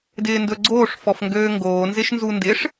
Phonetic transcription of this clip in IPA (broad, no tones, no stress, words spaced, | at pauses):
dɪːndɵɡ͡ǀoːʂ fɔfŋɡøːŋɡoːnzɪʃ nzundɪʂ